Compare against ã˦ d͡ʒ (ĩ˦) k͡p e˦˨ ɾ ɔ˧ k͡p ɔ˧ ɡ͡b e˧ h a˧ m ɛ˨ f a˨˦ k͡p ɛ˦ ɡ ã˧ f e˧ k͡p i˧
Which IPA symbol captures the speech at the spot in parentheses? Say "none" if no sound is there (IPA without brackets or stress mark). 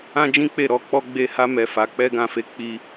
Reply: ĩ˦